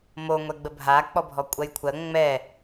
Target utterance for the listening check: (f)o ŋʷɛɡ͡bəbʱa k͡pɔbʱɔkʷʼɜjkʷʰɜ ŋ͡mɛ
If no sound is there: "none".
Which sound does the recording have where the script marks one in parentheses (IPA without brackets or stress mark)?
m